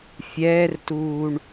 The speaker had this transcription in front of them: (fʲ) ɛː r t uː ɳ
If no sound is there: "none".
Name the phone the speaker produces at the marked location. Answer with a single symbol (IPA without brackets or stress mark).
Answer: fʲ